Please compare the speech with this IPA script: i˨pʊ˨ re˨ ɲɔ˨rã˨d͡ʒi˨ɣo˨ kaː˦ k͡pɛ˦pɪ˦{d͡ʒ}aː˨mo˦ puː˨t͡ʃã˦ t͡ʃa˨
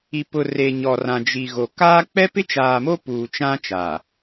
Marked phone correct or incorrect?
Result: incorrect